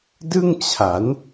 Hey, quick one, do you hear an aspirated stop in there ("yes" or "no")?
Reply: yes